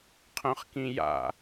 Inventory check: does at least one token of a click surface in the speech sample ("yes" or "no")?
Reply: no